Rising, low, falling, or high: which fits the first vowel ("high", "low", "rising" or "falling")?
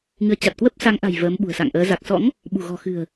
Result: rising